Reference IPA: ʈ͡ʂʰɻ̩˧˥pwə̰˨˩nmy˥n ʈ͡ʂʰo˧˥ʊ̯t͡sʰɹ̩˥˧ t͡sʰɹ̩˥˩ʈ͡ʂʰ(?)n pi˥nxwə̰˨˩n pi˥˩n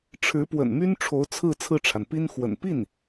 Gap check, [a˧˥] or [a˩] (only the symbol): a˩